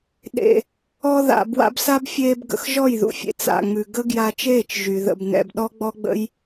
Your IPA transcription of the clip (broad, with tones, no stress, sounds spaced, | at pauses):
ɗ ḛ˨ | ɔ˧ ð a̰˨ b w a̰˧ b s a˦ b fʲ eː˧ b ɡ ə̰˨ x ʒ ɔ˦˨ j ð ṵ˨ fʲ ḛ˨ t͡s a̰˨ ŋ͡m ʉ˨ ɡ ə˦ ɡ j a˧ t͡ʃ eː˦˨ t͡ʃ ʒ y˨ ð ə̰˧ b n ɛ̰˧ b ɗ ɔ˦ ɡ͡b ɔ˦ ɡ͡b ə̰˦ j